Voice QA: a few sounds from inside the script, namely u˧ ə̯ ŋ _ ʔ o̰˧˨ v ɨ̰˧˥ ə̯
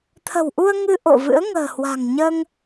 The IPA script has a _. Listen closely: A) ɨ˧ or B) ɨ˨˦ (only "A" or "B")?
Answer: A